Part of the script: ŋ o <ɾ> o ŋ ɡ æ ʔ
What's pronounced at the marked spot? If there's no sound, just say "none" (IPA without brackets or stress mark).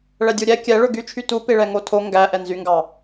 tʰ